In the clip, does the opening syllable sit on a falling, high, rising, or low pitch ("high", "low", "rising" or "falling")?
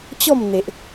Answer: falling